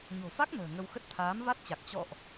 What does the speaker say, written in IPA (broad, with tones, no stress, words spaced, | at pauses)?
ɲo̤˨˩fa˦˥k̚ nə̤ː˨˩ŋə˧wxə˦˥t̚ t̪ʰaː˨˦mva˦˥t̚t͡ɕa˨˩k̚ t͡ɕɔ̰˧˨ʔ